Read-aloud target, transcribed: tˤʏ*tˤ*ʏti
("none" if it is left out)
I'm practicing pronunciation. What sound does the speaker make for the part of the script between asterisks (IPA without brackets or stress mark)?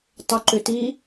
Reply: ǃ